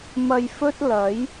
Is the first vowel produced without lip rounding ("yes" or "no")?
yes